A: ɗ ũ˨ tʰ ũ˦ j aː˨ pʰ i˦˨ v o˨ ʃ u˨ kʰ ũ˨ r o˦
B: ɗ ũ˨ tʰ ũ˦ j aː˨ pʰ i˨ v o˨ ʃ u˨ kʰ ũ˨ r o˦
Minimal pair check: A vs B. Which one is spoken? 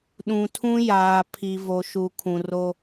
B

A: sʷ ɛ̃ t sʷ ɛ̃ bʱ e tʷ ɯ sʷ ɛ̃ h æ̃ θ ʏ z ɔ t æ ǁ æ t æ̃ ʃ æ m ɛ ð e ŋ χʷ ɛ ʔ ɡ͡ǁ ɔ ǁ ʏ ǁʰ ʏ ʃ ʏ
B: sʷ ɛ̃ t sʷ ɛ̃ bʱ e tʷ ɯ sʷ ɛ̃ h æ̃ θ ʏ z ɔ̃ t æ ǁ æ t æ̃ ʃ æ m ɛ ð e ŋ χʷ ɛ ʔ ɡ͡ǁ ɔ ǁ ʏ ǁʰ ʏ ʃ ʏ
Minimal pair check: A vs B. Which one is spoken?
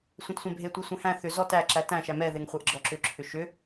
A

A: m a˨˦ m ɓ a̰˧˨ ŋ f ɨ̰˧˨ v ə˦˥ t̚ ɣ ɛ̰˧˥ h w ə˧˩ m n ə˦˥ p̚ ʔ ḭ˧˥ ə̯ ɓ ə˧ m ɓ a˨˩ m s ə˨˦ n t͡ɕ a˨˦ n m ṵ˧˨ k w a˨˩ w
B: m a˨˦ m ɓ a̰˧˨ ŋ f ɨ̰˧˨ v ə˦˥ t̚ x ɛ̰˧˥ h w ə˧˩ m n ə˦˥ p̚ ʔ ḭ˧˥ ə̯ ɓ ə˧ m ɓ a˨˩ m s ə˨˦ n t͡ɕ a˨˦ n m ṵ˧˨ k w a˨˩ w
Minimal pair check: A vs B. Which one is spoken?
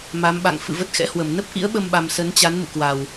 B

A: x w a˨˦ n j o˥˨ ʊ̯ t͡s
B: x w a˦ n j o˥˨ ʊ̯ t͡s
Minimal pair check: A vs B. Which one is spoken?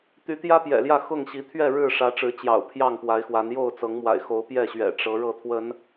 A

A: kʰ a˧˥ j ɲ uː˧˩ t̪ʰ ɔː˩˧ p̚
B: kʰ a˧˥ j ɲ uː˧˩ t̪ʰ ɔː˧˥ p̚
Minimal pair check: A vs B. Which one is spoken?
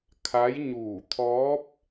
B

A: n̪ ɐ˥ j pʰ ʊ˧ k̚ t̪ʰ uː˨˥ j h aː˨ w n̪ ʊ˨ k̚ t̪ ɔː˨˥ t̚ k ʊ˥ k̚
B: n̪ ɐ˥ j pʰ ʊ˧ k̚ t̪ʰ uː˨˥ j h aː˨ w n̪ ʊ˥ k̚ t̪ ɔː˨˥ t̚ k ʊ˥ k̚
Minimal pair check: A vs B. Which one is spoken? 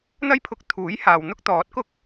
B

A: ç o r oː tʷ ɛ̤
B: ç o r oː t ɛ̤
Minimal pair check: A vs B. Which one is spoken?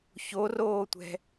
A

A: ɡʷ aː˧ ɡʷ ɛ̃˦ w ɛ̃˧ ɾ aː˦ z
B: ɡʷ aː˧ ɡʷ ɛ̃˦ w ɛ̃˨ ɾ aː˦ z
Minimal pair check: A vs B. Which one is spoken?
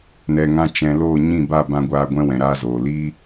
B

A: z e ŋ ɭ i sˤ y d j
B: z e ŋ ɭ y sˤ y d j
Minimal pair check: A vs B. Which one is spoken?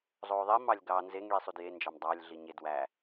A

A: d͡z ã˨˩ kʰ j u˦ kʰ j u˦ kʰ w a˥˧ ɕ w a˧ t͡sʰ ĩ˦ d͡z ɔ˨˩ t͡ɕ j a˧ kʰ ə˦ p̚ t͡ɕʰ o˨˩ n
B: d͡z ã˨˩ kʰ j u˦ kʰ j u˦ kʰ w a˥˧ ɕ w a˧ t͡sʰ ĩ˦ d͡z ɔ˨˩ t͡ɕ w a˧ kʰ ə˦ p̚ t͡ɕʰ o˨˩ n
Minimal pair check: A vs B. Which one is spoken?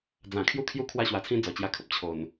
A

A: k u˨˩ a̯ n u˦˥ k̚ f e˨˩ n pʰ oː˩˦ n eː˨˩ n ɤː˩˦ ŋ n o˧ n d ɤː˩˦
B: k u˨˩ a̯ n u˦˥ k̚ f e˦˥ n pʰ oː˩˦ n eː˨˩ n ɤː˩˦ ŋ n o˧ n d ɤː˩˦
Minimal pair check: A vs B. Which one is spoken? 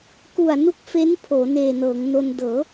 B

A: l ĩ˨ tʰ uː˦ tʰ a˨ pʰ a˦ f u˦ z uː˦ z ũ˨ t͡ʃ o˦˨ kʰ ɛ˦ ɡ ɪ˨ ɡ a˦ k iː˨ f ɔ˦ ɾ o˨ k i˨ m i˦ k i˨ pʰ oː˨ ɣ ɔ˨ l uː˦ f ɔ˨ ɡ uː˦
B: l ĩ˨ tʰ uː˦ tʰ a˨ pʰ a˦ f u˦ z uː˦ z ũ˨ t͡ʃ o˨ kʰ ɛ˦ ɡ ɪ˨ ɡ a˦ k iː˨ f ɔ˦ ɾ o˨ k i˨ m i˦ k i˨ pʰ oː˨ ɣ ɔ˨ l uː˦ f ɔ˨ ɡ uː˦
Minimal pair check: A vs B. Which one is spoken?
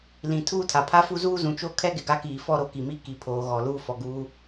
A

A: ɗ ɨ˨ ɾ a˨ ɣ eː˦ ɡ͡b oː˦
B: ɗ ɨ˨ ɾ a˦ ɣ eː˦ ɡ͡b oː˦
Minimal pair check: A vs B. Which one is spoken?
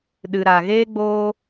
A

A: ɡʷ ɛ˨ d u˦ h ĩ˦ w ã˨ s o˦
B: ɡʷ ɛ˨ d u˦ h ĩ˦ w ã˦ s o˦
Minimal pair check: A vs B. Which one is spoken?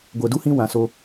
A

